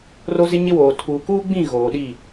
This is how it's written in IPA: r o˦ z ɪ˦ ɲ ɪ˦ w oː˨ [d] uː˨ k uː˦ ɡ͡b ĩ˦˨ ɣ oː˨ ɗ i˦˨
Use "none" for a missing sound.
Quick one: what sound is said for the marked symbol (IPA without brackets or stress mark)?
tʰ